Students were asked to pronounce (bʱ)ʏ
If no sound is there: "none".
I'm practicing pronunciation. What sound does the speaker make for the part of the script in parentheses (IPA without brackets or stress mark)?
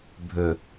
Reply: bʱ